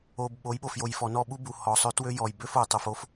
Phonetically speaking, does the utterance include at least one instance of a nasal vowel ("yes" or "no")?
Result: no